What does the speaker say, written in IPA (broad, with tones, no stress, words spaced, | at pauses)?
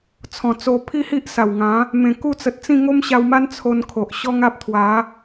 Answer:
t͡sʰɔ̃˨˩t͡so˧ pʰi˥˧hi˦ʔsa˨˩w ŋã˨˦ | mẽ˨˩ ku˥˧t͡sə˨t̚t͡sĩ˥˧ ŋo˦mɕa˧wma˦n t͡sʰo˧nkʰo˨ʔ ɕɔ˦ŋa˦p̚ t̪ʰwa˨˦